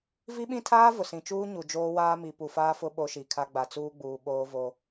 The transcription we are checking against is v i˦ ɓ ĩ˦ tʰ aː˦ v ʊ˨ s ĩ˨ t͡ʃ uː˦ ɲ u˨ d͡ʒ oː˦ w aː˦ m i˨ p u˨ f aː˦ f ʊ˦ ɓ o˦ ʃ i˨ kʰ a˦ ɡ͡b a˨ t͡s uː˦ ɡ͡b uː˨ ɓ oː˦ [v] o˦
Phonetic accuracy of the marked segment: correct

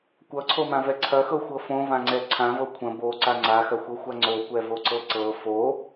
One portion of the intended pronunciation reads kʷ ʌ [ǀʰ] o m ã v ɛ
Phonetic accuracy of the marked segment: correct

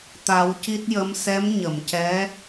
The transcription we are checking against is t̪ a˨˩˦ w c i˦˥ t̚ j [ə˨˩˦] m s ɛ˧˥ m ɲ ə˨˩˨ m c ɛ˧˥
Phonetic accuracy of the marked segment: incorrect: ə˧˥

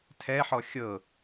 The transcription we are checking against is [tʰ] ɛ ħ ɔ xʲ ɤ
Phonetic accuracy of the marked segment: correct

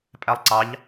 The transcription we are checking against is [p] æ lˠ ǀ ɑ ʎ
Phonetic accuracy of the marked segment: incorrect: pʼ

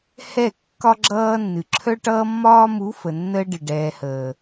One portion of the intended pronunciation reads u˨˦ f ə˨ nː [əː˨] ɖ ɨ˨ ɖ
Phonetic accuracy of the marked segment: incorrect: əː˦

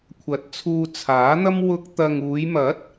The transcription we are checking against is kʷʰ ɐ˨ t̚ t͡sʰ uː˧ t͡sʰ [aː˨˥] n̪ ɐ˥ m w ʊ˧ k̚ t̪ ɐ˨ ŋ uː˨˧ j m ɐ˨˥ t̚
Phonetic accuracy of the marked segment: correct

